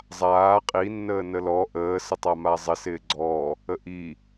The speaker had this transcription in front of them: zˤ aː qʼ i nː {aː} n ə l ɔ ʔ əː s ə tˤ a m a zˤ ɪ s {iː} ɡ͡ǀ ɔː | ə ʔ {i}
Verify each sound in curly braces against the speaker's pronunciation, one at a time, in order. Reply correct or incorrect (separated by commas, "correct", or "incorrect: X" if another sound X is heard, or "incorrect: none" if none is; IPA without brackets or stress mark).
incorrect: əː, incorrect: ɪː, correct